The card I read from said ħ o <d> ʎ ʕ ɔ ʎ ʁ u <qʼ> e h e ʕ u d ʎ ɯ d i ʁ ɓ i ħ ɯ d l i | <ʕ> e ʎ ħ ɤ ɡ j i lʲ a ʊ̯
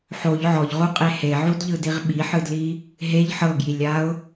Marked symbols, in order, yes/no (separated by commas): no, yes, no